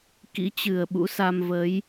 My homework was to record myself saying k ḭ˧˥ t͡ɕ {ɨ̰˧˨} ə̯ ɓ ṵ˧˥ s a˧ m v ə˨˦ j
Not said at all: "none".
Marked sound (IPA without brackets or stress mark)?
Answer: ɨ˨˩